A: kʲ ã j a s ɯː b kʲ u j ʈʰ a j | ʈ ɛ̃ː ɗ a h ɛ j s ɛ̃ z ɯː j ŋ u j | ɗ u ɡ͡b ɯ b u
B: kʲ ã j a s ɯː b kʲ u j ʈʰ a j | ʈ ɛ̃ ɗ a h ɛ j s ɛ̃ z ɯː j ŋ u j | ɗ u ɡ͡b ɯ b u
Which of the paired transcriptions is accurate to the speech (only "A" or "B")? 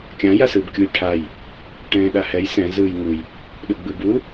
A